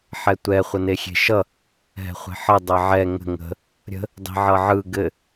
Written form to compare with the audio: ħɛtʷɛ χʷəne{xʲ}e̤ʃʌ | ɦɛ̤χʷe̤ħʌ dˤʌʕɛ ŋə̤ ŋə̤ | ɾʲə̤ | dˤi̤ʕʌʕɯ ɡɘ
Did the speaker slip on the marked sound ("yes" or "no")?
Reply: no